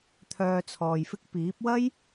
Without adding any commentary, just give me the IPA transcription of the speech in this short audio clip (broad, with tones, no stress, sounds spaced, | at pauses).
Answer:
t̪ʰ œː˧ t͡sʰ ɔː˨ j f ɪ˥ k̚ p iː˨˥ p̚ w ɐ˥ j